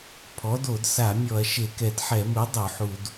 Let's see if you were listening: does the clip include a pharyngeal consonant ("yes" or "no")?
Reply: yes